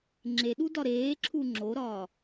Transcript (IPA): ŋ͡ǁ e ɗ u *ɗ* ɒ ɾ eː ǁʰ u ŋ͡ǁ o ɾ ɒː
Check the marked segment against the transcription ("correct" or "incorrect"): incorrect